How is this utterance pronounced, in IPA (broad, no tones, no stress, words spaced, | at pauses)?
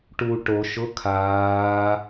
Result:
ʈu ʈo ʃʊ kʰaː